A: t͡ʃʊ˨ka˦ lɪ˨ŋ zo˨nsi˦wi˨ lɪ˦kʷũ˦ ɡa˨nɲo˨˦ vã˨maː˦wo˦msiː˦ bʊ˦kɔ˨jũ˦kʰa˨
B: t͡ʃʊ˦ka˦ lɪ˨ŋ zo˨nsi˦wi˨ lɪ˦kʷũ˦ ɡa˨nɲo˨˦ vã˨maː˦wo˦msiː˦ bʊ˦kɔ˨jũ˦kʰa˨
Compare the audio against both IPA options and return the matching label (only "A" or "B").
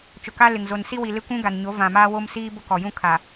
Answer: A